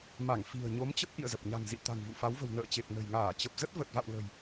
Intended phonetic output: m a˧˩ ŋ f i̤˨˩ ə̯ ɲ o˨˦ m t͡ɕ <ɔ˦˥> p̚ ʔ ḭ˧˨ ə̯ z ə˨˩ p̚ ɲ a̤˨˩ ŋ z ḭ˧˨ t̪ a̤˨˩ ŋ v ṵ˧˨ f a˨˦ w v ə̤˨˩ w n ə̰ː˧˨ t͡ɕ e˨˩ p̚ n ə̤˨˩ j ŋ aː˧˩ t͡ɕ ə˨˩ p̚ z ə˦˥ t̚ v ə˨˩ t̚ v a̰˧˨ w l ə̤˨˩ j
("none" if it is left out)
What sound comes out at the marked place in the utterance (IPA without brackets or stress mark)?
ə˦˥